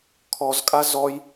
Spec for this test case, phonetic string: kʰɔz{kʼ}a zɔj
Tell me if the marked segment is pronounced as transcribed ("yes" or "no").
yes